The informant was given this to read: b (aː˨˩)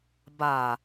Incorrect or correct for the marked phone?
correct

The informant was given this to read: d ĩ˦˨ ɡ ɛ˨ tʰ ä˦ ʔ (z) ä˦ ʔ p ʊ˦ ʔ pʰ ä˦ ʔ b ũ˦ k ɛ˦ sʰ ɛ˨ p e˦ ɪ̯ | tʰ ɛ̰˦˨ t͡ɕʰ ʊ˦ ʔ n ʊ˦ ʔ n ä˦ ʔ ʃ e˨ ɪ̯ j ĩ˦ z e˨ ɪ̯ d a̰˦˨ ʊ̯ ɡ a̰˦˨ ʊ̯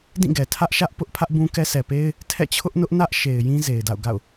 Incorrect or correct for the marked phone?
incorrect: ʃ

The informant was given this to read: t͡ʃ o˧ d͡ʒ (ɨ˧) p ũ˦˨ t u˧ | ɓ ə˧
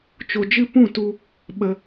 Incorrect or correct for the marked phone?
incorrect: ɨ˦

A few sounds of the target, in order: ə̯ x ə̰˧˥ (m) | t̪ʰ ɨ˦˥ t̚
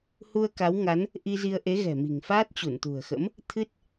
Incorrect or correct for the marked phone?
correct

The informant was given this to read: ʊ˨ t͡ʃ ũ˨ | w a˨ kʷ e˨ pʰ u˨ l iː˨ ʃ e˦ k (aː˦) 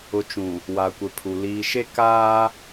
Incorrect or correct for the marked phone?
correct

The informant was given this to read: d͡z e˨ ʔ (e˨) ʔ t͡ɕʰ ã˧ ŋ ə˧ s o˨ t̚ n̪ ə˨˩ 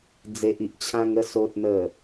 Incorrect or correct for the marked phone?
incorrect: i˨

